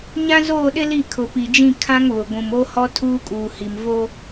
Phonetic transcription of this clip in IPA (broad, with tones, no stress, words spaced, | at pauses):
ɲã˦zoː˦˨ɗɪ˦li˦˨ kʰʊ˨pi˨d͡ʒĩ˦˨ kʰã˦ŋβʊ˨ ɡʷũ˨mo˦hɔ˦ tʰuː˦kʼuː˨hi˨m vo˦